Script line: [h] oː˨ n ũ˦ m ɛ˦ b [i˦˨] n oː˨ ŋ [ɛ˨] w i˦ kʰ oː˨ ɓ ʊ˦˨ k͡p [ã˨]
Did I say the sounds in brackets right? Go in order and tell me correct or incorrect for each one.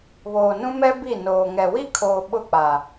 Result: incorrect: β, correct, correct, incorrect: a˨

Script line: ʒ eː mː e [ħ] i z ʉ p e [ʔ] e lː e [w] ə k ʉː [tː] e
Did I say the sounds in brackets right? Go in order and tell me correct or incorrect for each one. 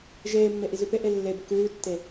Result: incorrect: ʔ, correct, incorrect: b, correct

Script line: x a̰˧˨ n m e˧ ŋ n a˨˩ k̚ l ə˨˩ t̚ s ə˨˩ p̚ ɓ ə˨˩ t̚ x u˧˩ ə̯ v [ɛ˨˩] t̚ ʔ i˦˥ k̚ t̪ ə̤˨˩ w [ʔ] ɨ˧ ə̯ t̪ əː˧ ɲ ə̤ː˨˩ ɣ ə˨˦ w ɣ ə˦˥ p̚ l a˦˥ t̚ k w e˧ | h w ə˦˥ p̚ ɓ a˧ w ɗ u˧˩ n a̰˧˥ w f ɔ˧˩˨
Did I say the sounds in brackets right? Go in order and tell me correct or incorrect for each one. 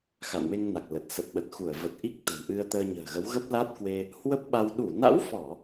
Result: incorrect: ə˨˩, correct

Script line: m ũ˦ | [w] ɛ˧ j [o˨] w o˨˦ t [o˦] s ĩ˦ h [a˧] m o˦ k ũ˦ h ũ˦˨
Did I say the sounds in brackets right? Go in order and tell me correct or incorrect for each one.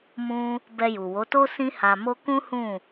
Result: incorrect: b, incorrect: u˨, correct, correct

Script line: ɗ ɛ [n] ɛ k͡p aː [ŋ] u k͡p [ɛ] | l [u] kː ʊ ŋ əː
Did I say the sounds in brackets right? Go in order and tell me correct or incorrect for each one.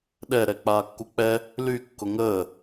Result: incorrect: ɾ, incorrect: kː, correct, incorrect: y

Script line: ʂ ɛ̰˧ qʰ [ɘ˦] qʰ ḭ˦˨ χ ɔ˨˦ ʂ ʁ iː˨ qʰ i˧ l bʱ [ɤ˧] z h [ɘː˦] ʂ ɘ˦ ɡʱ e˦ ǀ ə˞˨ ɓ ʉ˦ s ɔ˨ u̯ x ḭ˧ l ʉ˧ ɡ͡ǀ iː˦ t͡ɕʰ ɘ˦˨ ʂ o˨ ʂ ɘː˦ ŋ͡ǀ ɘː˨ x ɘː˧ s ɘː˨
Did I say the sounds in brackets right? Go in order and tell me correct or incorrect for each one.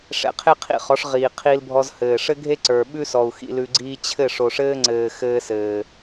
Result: incorrect: e˦, incorrect: ɔ˧, incorrect: ɘː˨

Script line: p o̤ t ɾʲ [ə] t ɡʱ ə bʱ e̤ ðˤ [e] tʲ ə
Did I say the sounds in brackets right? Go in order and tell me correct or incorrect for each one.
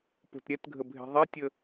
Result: incorrect: ɛ, correct

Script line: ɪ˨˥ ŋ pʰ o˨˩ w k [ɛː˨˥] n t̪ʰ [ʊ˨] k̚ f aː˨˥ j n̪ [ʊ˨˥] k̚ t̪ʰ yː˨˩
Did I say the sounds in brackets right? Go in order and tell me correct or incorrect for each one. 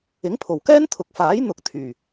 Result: incorrect: ɛː˥, correct, correct

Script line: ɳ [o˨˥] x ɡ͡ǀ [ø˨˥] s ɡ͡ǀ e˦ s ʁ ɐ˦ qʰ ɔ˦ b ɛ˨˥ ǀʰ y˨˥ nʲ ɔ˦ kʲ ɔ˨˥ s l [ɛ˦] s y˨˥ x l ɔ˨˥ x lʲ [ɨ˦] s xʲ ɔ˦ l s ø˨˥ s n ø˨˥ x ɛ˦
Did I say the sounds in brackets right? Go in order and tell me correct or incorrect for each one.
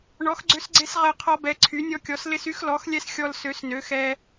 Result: incorrect: ɔ˨˥, incorrect: ø˦, incorrect: ɪ˦, incorrect: ɛ˦

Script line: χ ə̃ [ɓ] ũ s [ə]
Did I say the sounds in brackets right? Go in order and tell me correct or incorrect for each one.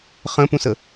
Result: incorrect: p, correct

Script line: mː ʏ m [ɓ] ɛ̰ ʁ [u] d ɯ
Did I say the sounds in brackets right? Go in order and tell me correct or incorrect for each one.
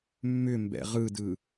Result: incorrect: b, incorrect: ɯ

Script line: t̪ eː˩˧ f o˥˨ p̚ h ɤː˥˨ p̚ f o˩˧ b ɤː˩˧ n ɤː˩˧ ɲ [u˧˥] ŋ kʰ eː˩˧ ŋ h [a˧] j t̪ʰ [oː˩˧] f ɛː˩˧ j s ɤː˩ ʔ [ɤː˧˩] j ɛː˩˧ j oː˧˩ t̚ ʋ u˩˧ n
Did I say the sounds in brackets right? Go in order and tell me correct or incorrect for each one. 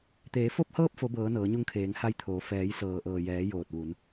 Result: incorrect: u˧, correct, correct, incorrect: ɤː˩

